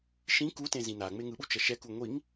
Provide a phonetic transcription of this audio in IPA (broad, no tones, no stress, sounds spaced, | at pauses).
ʃ ĩ k u t ẽ z ĩ n a ŋ͡m e ŋ ɯ ɓ u t͡ʃ ʌ ʃ ɛ k u ŋʷ i ŋ